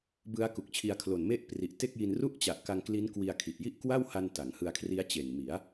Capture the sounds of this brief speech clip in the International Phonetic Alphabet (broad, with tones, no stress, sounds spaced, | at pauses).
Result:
b ɯ˦˥ a̯ k u˨˩ k̚ t͡ɕʰ i˧ a̯ kʰ l o˨˩ n m e˥˩ ʔ p r i˨˩ ʔ t e˥˩ k̚ j i˧ n r u˥˩ ʔ t͡ɕ a˨˩ ʔ k a˧ ŋ k l i˦˥ n k w i˧ a̯ kʰ i˨˩ ʔ j i˥˩ ʔ k w a˥˩ w h a˧ n t a˩˦ ŋ h ɯ˧ a̯ kʰ r i˦˥ a̯ t͡ɕ e˨˩ n m i˩˦ a̯